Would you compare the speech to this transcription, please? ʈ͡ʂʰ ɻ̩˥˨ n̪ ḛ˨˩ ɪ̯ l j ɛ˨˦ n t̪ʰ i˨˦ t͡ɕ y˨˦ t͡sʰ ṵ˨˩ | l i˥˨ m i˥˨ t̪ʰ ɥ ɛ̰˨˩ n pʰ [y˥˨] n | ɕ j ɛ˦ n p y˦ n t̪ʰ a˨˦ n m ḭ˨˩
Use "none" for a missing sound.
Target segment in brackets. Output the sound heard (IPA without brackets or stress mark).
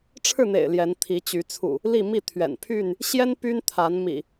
y˥˨